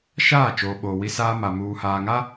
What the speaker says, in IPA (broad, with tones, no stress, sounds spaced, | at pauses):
ʃ aː˦˨ t͡ʃ oː˨ ɓ oː˨ w i˦ s aː˦ m a˨ m uː˨ h aː˨ ŋ a˦